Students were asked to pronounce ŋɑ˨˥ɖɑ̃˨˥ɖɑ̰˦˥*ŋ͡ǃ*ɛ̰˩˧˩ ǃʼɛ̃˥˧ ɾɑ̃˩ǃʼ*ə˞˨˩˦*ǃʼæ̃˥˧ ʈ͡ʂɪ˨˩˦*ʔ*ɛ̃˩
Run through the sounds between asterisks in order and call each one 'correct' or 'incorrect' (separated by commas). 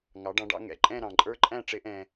incorrect, incorrect, correct